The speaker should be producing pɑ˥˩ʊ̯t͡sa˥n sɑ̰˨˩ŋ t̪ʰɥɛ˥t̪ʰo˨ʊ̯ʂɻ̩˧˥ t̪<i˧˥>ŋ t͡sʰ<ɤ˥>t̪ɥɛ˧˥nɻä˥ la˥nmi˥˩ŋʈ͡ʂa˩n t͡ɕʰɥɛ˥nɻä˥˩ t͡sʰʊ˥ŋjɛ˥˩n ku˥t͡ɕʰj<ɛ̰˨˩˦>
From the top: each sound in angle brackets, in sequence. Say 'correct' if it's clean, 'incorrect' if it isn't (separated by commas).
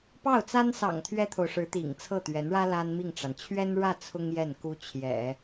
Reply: incorrect, incorrect, correct